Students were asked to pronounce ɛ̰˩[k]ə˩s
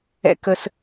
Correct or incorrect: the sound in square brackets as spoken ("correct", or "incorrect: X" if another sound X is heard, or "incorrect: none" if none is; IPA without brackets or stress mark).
correct